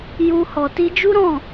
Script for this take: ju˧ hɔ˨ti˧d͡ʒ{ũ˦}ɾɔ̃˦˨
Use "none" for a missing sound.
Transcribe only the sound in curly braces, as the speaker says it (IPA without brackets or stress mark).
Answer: u˦